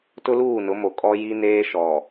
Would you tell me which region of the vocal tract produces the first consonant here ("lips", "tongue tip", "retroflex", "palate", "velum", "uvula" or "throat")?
tongue tip